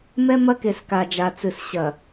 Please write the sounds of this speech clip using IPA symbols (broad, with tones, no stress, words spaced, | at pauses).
mɛ˦mɐ˦ke˨s ka˨d͡ʒa˨t͡sɨ˨s ɕɐ˨